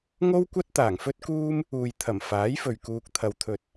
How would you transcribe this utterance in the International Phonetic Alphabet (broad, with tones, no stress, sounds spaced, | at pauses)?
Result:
ŋ o˥ w kʷ ɐ˥ t̚ t̪ aː˨˩ ŋ f ɵ˥ t̚ k uː˥ m | uː˨ j t̪ʰ ɐ˨˩ m f aː˨˥ j f ɵ˨ ɥ k uː˧ k̚ t̪ʰ ɐ˧ w t̪ʰ ɵ˧ t̚